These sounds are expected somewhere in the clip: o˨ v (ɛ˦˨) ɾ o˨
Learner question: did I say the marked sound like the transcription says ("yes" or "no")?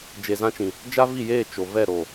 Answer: yes